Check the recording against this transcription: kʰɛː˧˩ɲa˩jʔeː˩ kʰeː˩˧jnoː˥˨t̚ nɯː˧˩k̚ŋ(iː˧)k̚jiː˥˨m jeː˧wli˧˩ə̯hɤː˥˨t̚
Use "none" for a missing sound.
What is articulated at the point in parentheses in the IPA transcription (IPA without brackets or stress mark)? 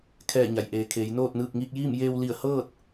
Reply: iː˧